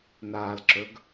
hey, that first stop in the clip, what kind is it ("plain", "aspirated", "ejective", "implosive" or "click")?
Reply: click